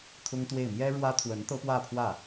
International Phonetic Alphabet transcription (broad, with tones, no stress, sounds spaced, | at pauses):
t̪ʰ ʊ˥ ŋ t̪ w e˥˩ ɪ̯ m j ɛ˥ ɻ w ä˥ t̪ʰ w ə˧˥ n t̪ ɤ˥ p w ä˥˧ pʰ w ä˥˩